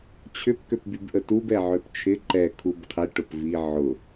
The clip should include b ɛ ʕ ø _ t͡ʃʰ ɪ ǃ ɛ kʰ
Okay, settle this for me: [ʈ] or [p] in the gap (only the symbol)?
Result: p